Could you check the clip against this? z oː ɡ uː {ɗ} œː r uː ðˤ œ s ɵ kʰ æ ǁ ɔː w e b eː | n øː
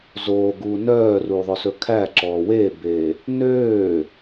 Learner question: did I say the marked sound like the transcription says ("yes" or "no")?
no